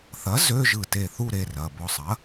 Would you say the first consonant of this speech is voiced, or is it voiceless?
voiceless